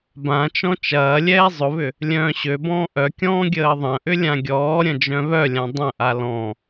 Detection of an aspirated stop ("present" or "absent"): absent